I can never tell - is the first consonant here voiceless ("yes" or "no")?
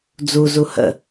no